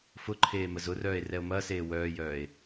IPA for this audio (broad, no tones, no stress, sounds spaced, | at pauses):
f ʊ ǃʰ eː m ə z ʊ r œː e̯ r ɛ o̯ m ɐː s eː w œː j œː e̯